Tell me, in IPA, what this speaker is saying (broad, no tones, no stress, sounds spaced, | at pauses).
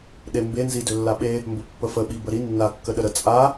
ɗ e m b e n z i d ø lː a ɓ e | m b ə pː ə f ə ɓ i b ə ɾ i nː a kː ə ɗ ə ɾ ə t͡sʼ a